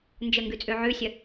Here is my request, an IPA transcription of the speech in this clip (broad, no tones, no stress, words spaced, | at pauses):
nd͡ʒəŋɡʉt͡sʼʉ ʕʉsʲə